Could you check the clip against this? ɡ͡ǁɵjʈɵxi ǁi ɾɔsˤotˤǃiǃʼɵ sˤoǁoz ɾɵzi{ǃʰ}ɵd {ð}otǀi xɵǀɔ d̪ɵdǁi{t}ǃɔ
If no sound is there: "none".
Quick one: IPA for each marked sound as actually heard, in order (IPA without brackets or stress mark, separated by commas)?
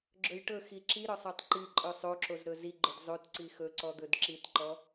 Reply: ɡ͡ǃ, zˤ, t